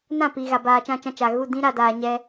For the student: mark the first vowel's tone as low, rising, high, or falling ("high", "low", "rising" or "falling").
falling